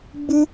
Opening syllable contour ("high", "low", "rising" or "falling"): high